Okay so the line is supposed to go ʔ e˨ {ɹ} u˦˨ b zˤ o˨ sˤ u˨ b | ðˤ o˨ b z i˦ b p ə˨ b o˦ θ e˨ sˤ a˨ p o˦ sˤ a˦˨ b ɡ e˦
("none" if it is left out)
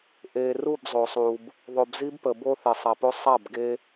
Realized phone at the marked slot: r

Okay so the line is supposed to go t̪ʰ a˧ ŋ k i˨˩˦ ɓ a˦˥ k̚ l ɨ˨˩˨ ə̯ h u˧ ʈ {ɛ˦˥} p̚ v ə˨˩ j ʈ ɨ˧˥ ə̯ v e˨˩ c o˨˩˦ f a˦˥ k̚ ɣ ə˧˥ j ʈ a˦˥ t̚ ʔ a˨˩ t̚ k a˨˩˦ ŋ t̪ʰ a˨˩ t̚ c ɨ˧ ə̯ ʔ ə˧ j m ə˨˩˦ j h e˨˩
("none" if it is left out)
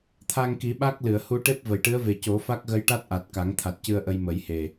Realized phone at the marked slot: e˦˥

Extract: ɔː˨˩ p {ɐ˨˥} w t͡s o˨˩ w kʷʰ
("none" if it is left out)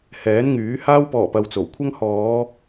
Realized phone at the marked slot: ɐ˧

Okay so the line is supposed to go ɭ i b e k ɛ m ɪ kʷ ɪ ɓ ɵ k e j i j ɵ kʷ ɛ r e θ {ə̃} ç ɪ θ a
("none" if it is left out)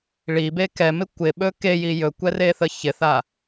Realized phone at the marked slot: ə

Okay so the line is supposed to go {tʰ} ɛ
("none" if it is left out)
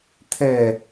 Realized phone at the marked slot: tʰ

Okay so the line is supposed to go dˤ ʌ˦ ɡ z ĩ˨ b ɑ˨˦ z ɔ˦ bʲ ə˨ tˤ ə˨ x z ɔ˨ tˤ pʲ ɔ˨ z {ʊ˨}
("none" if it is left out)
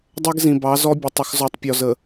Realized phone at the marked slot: ə˨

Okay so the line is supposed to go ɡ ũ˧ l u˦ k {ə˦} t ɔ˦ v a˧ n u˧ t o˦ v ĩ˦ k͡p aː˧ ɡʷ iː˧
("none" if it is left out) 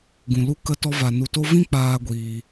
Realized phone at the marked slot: ə˦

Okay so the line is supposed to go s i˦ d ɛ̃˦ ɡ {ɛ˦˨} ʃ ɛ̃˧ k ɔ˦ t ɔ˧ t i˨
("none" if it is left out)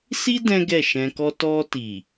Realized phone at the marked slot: ɛ˦˨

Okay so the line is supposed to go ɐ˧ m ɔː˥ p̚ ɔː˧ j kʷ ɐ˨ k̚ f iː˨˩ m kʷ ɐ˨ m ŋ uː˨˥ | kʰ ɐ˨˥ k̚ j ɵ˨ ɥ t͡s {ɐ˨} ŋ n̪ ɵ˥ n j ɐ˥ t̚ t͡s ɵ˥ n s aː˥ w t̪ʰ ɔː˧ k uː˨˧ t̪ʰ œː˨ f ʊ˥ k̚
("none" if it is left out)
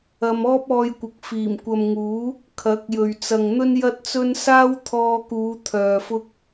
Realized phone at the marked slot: ɐ˨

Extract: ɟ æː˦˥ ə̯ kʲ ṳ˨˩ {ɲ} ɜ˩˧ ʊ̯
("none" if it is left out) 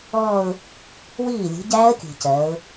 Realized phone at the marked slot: c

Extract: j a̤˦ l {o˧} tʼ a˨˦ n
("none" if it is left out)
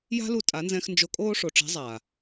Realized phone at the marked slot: u˧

